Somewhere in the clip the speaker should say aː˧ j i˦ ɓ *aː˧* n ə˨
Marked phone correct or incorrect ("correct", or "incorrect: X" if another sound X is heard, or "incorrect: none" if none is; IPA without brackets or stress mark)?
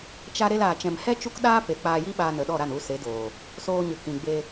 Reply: correct